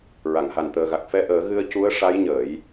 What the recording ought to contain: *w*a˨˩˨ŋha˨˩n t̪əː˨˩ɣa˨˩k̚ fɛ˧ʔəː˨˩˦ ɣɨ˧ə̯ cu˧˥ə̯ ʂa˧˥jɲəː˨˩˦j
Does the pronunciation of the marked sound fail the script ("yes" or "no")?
yes